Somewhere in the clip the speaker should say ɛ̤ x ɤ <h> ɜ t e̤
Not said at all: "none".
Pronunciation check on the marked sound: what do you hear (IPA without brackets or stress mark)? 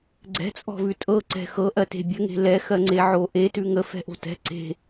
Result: ʔ